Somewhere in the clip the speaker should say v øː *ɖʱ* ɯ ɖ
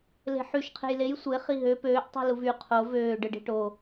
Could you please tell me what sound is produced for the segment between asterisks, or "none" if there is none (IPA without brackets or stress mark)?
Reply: ɖ